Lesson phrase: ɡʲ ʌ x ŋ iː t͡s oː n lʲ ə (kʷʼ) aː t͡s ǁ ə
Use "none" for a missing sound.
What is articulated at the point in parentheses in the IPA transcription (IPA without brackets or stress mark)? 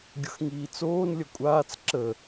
kʷʼ